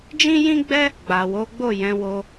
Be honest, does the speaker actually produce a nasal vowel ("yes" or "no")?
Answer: yes